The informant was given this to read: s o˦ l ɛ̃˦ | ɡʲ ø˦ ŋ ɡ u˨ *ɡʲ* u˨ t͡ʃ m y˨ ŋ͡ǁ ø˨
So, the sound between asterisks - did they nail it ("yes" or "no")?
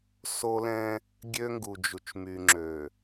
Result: no